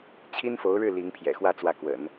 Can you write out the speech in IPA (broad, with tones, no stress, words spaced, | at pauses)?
t͡ɕʰi˥nfo˧˥ʊ̯ɻɻ̩˥˩ li˧˥ŋpʰjɛ̰˨˩xwä˥˧ t͡swä˥˩kwə̰˨˩˦n